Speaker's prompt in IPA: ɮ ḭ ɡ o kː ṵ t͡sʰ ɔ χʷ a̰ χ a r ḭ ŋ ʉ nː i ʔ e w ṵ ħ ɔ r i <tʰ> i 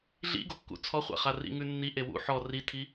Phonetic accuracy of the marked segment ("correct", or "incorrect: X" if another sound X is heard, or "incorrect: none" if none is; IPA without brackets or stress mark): correct